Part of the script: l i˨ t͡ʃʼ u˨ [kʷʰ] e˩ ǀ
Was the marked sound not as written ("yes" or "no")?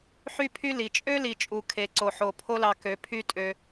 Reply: yes